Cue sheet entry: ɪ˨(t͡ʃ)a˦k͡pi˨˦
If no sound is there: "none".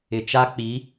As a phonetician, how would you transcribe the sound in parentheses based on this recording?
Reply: t͡ʃ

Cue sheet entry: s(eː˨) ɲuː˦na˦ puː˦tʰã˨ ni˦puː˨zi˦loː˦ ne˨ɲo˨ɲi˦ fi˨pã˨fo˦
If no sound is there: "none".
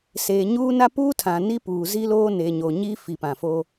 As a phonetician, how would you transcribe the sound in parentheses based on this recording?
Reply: eː˨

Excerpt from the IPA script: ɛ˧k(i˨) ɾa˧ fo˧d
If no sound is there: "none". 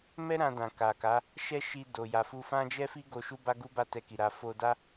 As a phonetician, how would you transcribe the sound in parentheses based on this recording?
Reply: i˨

